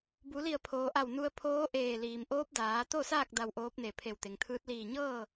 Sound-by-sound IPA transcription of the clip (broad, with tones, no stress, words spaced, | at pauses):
bu˩˧li˧˩ə̯pʰoː˩ʔa˧˩w nu˧ə̯pʰoː˧˥ʔeː˧˩ liː˩mʔoː˧˥p̚ daː˩˧t̪o˥˨saː˥˨k̚ da˧wʔoː˧˥p̚ne˧˩ pʰe˧˩wt̪e˩ŋt̪ʰɯː˧˥t̚ liː˧˩ɲɤː˥˨